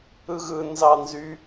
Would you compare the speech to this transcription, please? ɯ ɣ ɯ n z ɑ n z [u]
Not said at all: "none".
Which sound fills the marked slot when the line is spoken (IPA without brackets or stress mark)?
y